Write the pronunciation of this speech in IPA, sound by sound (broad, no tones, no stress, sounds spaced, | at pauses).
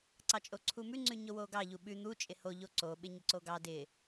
ǀ ɑ t͡ʃʼ o ǀʰ u m ʉ ŋ͡ǀ ʉ ɲ o w o ɡ ɑ ʎ u ɓ ʉ n̪ u t͡ʃʼ ɪ h o ʎ o ǀ o ɓ ɪ ɲ ə ǀ o ɡ ɑ d ɪ